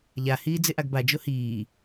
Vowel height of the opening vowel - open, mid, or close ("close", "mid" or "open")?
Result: open